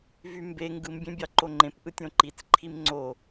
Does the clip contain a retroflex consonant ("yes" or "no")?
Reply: no